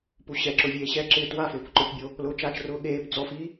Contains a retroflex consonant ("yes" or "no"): no